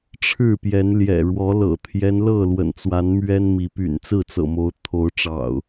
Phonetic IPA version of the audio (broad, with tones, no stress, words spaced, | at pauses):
ʈ͡ʂʰɻ̩˥˨pjɛ˨˦n ljɛ̰˨˩ɻwɔ˨˦ lɤ̰˨˩t̪ʰjɛ˦nlɤ˥˨ lwə̰˨˩nt͡swa˨˦n mɥɛ˦nmi˨˦ py̰˨˩nt͡sɹ̩˥˨t͡sɤ̰˨˩mo˨˦ʊ̯ t̪ʰo˨˦ʊ̯ʈ͡ʂɑ̰˨˩ʊ̯